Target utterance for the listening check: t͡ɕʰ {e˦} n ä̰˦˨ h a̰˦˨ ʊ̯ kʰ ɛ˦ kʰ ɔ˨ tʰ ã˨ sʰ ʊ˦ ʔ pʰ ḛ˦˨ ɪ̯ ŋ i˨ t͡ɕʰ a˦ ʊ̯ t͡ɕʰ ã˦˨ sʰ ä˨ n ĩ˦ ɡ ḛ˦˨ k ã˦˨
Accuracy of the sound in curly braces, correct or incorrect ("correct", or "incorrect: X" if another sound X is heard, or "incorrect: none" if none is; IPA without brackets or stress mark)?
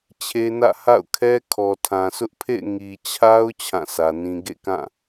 correct